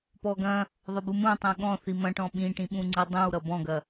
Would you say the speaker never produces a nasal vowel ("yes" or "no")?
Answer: no